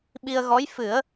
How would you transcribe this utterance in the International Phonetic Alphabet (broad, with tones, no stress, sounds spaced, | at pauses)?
ɓ i˧ ə̯ ɣ ɔ˧˥ j f ɨ˨˩˦ ə̯